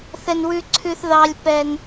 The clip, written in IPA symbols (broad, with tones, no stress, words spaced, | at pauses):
θɛ˧n wʉ˧ǀʰʉ˧θ ðɑ˧lʲpɛ˧n